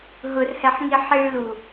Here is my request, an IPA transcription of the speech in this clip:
ɦ ʊ r h ɛ ħ ŋ i ħ i ɭ l u

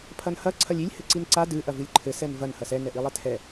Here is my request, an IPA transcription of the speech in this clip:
pʰ ɐ n h ɐ ǀʰ ɐ lʲ i lʲ h ɘ ǀ i n ǀ a d ɨ ʔ ɐ v ɨ lʲ ǃʰ ɘ s ɛ n v ɐ n h ɐ s ɛ n ɛ ʔ i lˠ ɛ tʰ ɛ

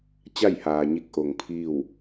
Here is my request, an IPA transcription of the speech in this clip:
t͡ɕ a˥˨ j h aː˩ ɲ i˧ k̚ ʔ o˩ ŋ pʰ iː˥˨ w

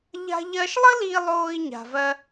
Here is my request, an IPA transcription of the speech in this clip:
ʎ a̤˥ ʎ ɜ˥ ʃ lˠ ə˥ l i˧ lˠ oː˧ i̯ ɲ a̤˧ v ɜ˥

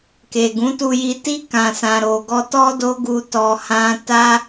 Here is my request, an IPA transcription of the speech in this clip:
k e˨ ɡ ũ˨˦ t u˧ j i˧ t i˧ k ã˨ s ã˨ ɾ o˨ ɡ ɔ˧ t ɔ˦ d o˦ ɡ u˧ t ɔ˧ h ã˦ t a˦

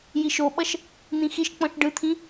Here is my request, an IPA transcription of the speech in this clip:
j i ʃ o ɓ ʌ ʃ | n̪ ĩ x i ʃ k͡p ɔ̃ ʃ ɖ ɯ t̪ʰ ĩ

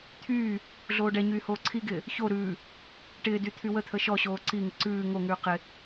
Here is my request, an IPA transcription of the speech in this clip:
t̪ʰ yː | ɮ oː ɖ ɛ ɲ yː h oː ǀʰ i ɡ ɪː | ç o ɾ ʉː | ʈ ɪː d y t̪ʰ y w ə t̪ʰ ə ʃ ɔ ɕ oː ǀ i ŋ ɪ ǀ ʉː ŋ o ŋ ʉː q ɪ

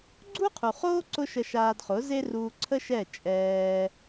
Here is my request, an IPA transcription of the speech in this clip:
ɡ͡ǀ u˦ qʰ u˨ χ oː˦ ǀ ʊ˦ ʃ ə˧ ʃ aː˧ d χ ʊ˨˦ z e˦ r uː˧ ǀʰ ə˦ ʃ ɛ˦˨ t͡ʃʼ ɛː˧

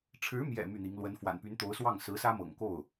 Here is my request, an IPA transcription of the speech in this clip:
ʈ͡ʂʰ ɻ̩˧˥ m j ɛ̰˨˩ m y˥˩ n̪ i˧˥ ŋ l w ə˧˥ n f w a̰˨˩ n p y˧˥ n t̪ o˧˥ ʊ̯ s w ɑ˥˩ ŋ s ɹ̩˧˥ s ä˥ m ɤ̰˨˩ ŋ k o˥˩ ʊ̯

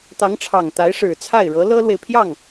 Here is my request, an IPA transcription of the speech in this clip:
t̪ ɑ˧˥ ŋ ʈ͡ʂʰ ɑ˨˩ ŋ t̪ a˧˥ ɪ̯ ʂ ɻ̩˨˩ t͡sʰ a˥˩ ɪ̯ ɻ ɤ˧˥ l ɤ˥ l w e˨ ɪ̯ pʰ j ɑ˥˩ ŋ

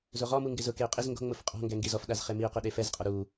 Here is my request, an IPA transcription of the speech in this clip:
z o ʁ ɔ m u ŋ ɡ ɪ z ʊ k e ʊ̯ qʼ ɪ z ŋ ɡ o̤ ŋ͡m ʊ f qʼ ɔ̤ ŋ ɡ ɛ ŋ ɡ i z ɔ f ɗ a z χ e m i ʊ̯ q o ɗ e f ɛ z qʼ ɔ ɾ u

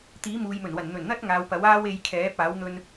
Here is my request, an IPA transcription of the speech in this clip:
t̪ iː˨˥ m uː˨ j m ɵ˨˩ n w ɐ˨˩ n n̪ ɵ˨˩ n n̪ ɐ˥ t̚ ŋ aː˨˧ w p ɐ˨˥ w aː˥ w e˧ j kʰ ɛː˨˥ p̚ aː˨˥ w n̪ ɵ˧ n

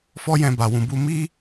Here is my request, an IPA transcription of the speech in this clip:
f ɔ˦ j ɛ̃˧ b a˨ w ũ˨ b u˧ m i˦

